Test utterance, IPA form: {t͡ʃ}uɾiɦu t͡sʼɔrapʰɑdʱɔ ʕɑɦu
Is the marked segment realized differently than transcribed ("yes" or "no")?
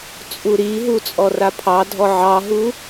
yes